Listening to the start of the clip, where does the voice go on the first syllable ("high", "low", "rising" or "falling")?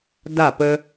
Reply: falling